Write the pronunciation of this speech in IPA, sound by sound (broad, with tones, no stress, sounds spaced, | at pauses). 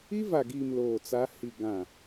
i˦ v a˨ ɡ iː˨ m l oː˨ t͡s a˨˦ h i˨ ɡ ã˨